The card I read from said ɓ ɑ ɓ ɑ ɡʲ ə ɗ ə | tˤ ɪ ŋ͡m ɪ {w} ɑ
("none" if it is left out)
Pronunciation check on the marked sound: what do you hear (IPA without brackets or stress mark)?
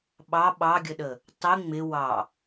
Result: w